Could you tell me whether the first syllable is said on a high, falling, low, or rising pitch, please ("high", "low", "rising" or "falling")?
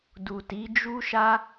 low